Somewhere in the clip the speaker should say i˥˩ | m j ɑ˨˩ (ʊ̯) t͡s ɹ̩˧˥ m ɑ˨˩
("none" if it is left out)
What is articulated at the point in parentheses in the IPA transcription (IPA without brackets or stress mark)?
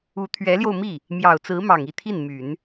ʊ̯